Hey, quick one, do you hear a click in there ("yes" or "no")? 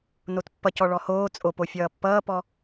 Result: no